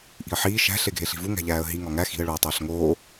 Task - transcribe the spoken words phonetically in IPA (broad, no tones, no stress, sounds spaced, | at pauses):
ʔ i̤ ə̯ ħ iː ʃ æ̤ ɬ e ɡʱ e ɬ i̤ v u ŋ æ̤ ʎ æː ə̯ ɦ i ŋ ɒ ŋ æ x i̤ ə̯ ɭ uː tˤ æ ɬ ŋ oː